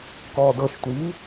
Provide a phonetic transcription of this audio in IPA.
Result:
k ɔː d ɤ ʃ tʷ iː

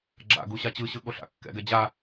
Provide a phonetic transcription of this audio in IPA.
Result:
ɡ͡ǁ a̰ ɡ u ɕ a t͡ɕ ɯ ɕ ɯ ɠ o ɬ a̰ kː ɛ̰ ɡ ɛ d͡ʑ a

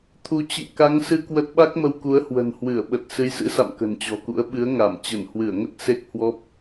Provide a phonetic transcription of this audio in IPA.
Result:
t̪ʰ u˨˦ t͡ɕ ɨ̰˧˨ ŋ k a˨˦ ŋ s ɨ˧ k w ə˦˥ t̚ ɓ a˦˥ k̚ m ə˧ w k u˨˦ ə̯ h w ə̤˨˩ n h w ɨ˧˩ ə̯ ɓ ə˨˩ t̚ s ɨ˨˦ j s ɨ̰˧˥ s a̰˧˨ m k ə̤˨˩ n t͡ɕ ɔ̤˨˩ k ṵ˧˥ ə̯ ɓ ɨ˨˦ ə̯ ŋ a˧˩ m t͡ɕ ə˧˩ n h w ɨ˧˩ ə̯ ŋ ə˦˥ t̚ s e˦˥ k̚ h w ɔ˦˥ p̚

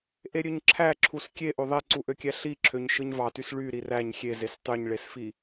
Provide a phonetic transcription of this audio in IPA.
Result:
ʔ e ɾʲ ø ɲ ǁʰ æ ǁʰ u s kʲ e ʔ o ðˤ e ǀ u ʔ ø kʲ æ ɬ i ǁʰ ø ɲ ʃ ɯ ɲ v ɑ t y s ɭ y ɾ i r æ ɲ xʲ e z e s tˤ y ɲ ɭ e s f i

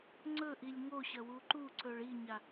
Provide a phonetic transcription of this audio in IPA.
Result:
ŋ͡ǀ ɵ ʔ i lʲ ŋ o ɕ ɐ w u ǃ u ǀ ɵ ɭ i ɲ a

